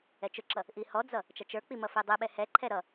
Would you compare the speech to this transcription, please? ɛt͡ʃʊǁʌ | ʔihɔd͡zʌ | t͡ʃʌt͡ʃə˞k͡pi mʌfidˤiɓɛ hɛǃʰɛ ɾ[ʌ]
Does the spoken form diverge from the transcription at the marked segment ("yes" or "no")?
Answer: no